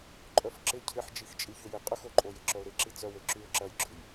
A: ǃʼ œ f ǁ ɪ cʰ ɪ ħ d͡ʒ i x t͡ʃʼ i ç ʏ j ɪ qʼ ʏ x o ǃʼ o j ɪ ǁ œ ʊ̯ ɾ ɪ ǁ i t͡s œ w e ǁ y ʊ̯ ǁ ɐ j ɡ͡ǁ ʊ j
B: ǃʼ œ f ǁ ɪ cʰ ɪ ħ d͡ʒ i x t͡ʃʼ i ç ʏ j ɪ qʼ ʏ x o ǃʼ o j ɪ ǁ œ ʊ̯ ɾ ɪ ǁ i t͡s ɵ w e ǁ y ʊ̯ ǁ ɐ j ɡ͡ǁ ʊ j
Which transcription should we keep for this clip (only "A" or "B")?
A